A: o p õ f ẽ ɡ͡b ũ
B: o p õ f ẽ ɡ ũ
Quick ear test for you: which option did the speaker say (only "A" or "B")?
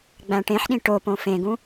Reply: B